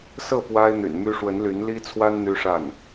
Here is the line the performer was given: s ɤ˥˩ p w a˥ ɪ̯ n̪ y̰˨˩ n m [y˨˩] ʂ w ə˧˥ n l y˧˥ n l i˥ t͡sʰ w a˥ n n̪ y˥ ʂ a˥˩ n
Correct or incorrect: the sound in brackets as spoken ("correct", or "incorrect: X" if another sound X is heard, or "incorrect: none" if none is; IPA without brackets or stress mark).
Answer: incorrect: y˥